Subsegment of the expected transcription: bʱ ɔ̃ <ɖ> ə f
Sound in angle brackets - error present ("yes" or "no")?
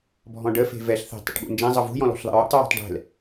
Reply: no